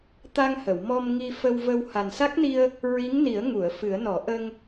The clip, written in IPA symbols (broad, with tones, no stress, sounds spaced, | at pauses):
t̪ a˧ ŋ h ə˨˩˨ w m ɔ˧ m ŋ i˧ f ə˧ w v ə˧ w h a˨˩ n s a˦˥ k̚ n i˧ ə̯ | ɹ i˧˥ ŋ n i˨˩˦ ə̯ ŋ u˨˩˨ ə̯ f ɨ˨˩˦ ə̯ n ɔ˨˩˦ ʔ ə˧ ŋ